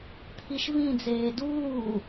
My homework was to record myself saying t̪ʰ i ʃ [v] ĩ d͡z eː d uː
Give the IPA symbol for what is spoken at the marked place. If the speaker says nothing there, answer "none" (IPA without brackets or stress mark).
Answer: v